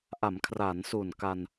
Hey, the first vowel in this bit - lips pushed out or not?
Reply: no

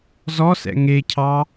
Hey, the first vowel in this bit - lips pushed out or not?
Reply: yes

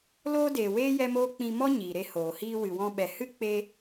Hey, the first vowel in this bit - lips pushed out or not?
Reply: yes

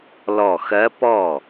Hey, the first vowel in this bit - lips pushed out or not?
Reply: yes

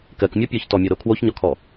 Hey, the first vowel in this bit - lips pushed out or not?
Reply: no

